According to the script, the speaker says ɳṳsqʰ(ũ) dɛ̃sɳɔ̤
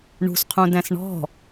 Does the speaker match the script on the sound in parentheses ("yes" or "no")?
yes